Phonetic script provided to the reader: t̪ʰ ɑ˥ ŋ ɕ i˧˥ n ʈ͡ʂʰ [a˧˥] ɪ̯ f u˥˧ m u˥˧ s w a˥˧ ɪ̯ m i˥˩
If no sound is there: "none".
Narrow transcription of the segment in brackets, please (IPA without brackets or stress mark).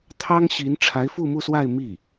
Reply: a˧˥